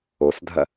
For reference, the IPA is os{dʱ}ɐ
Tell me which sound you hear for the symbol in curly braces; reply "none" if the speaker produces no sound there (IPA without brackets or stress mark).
dʱ